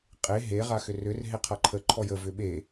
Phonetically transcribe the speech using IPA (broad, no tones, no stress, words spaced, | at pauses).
qʼe ɦe ʁaxʏrʏr ɦeqʰaǃʰə ǃʰɔjə vʏɓe